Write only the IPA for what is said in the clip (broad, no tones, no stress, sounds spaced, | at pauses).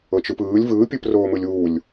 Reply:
ɤ t͡ʃ ɯ p ɯː lʲ v ɯː pʲ ɯ p r oː m ɯ lʲ uː lʲ